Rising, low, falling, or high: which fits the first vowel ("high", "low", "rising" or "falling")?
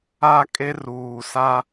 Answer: high